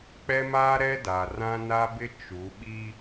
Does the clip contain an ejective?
no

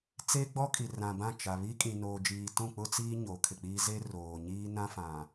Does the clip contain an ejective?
yes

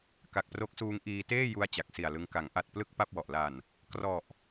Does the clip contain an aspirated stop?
no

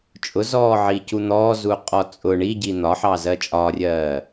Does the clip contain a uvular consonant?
yes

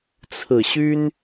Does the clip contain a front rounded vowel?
yes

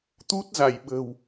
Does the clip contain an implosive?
yes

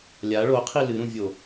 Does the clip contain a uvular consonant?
yes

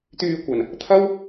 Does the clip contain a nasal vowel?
no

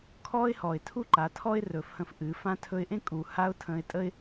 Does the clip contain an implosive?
no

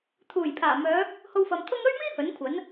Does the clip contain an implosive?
no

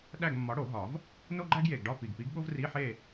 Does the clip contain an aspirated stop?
no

